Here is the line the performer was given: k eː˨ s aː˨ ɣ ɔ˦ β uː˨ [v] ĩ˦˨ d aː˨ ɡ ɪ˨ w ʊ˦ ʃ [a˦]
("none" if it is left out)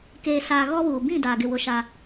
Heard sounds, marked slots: b, a˦

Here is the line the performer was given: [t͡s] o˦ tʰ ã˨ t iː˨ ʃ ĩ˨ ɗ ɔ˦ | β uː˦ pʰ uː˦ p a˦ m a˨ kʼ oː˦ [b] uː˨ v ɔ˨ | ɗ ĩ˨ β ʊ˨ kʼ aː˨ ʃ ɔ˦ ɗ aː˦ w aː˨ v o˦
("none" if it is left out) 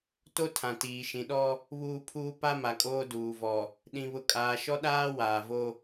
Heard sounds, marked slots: t, d

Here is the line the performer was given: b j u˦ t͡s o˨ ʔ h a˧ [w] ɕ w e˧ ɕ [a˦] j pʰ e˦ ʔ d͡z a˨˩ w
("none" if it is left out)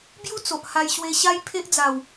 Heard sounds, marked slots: j, a˦

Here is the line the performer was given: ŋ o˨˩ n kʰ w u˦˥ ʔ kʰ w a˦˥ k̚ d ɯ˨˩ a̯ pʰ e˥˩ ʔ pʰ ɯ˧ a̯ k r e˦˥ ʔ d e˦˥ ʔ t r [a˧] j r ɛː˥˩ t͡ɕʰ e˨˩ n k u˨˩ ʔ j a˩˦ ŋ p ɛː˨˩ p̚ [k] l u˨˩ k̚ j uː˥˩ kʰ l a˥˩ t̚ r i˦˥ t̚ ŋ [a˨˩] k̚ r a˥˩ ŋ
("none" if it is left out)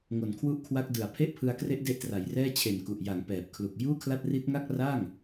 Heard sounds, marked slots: a˩˦, kʰ, a˥˩

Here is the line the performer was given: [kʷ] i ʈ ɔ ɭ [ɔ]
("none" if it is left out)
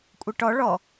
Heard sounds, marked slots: kʷʼ, ɔ

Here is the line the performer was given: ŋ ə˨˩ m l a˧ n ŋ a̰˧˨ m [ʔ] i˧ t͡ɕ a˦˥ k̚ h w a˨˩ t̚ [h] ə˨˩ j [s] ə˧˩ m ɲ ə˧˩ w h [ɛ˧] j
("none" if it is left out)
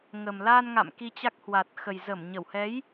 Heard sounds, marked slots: k, x, z, ɛ˨˦

